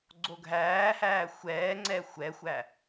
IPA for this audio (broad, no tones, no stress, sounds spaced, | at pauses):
ɡ͡ǀ o ɡʱ æː h æː xʷ ɛː ŋ͡ǀ ɛ xʷ ɛ xʷ æ